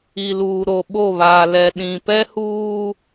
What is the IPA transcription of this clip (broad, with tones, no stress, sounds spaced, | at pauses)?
i˨ l uː˨ ɾ o˨ ɓ o˦˨ β aː˨ l ɛ˨ ɗ ĩ˨ p ɛ˦ h uː˦